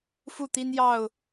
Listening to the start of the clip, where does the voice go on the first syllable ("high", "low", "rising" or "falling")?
falling